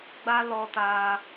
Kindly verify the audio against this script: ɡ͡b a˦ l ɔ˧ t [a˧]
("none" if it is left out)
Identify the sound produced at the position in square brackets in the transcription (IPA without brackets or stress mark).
a˧